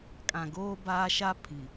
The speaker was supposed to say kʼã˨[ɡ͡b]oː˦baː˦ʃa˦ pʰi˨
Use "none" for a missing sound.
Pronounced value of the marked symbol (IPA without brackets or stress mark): ɡ